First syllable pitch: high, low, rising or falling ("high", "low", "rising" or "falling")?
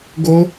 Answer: high